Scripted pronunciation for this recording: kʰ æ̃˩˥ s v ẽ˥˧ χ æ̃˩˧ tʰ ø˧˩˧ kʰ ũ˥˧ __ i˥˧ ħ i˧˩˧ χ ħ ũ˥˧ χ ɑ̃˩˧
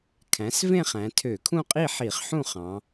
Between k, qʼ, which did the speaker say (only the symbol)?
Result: qʼ